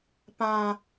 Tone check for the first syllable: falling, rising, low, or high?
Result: high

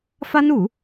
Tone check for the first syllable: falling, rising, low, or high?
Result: high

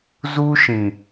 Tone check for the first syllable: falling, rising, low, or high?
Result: high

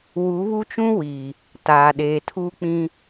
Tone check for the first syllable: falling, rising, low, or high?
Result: rising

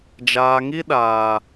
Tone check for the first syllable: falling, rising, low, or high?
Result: low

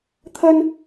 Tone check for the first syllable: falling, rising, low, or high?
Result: high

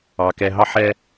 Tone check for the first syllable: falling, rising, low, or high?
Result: low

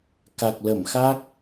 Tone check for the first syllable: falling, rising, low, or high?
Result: low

